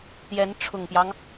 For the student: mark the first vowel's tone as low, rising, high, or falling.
rising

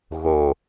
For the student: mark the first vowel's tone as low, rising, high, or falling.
low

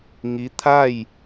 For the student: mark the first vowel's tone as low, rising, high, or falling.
rising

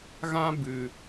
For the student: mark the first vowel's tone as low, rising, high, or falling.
high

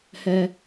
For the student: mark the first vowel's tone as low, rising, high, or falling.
high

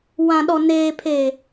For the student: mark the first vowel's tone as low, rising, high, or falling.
low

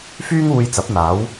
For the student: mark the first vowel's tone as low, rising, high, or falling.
high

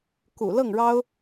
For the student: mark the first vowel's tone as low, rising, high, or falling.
low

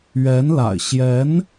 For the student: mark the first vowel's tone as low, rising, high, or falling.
rising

